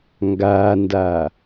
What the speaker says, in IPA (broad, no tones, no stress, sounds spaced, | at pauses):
ŋ ɡ aː n d a